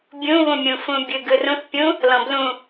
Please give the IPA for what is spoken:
bʲ ũ β ũ mʲ ũ f ũ bʲ ɯ ɡ ɯ r ũ θ pʲ ũ | l ɔ̃ b l ũ

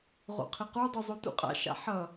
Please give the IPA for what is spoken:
ʁ o̰ qʰ ɪ q u dˤ u zˤ o t ṵ qʼ a̰ ʃ a̰ ħ ʌ

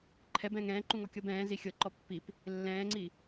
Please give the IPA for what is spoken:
ǃʰ ɛ b ɛ̃ː ŋ ɛ̃ː ǃ ũ ŋ ɔ kʲ ɤ b ɛ̃ː z i xʲ ɤ ǃ ɔ pː i p | lː ɛ̃ː ŋ͡ǀ i

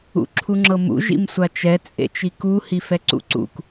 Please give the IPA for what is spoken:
ṵ ǁʰ u ŋ͡ǁ ɤ m ṵ ʒ ḭ m sʷ a t͡ʃ ɛ t͡sʼ ḛ t͡ʃ i k u h i f ɛ ǀ ṵ ǀ ṵ k

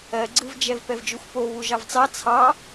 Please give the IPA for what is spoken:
ɜ ɡ͡ǀ ɯ v d͡ʒ ɛ v p ɛ v d͡ʒ u xʷ p o β u ʒ ɑ v t͡s ɑ t͡sʰ ɑ

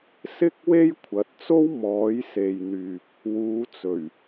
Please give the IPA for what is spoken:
s ɪ˥ k̚ w e˥ j kʷʰ ɐ˨˥ t̚ t͡s o˥ w m ɔː˨˥ j s e˨ j n̪ yː˨ p̚ | w uː˨˧ t͡s ɵ˨˩ ɥ

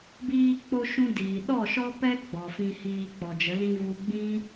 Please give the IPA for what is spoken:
b iː˧ k͡p o˧ ʃ ũ˦ d iː˨ ɗ ɔ˦˨ ʃ ɔ˦ p ɛ˦ ɡ͡b ɔ˨ f ĩ˧ h iː˧ k͡p ɔ˨ d͡ʒ ə˨˦ l ĩ˦ v u˧ ɡ͡b ĩ˦

